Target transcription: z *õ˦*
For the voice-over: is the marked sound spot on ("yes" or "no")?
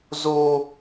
no